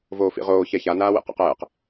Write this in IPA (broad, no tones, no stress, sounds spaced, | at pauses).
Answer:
v oː f ḭ ʁ oː ç ɛ ç a n aː w ḛ q ɛ̰ q ɛː q